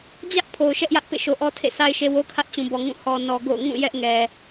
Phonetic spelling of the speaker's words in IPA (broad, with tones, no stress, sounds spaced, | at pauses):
d͡ʑ ä˦ ʔ pʰ o˨ ʊ̯ ʃ ɛ˦ ʔ j ä˦ ʔ p ḛ˦˨ ʃ o˨ ʔ ɔ˦ tʰ ḛ˦˨ sʰ a˦ ɪ̯ ʃ e˦ w o˦ kʰ ä˦ ʔ t͡ɕ ũ˨ b ɔ˨ ŋ ũ˦˨ h ɔ˨ n ɔ˨ ɡ o̰˦˨ ʊ̯ ŋ ũ˦˨ j ɛ˦ ʔ ŋ ɛ˨